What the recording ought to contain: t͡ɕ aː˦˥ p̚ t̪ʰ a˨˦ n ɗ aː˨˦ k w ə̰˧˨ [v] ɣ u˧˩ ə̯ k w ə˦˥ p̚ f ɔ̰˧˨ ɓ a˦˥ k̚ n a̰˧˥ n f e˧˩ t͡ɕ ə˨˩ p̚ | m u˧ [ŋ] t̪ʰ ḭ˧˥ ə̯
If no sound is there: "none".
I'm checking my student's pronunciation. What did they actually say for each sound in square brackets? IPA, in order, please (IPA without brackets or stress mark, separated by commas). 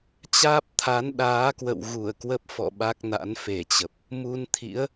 w, n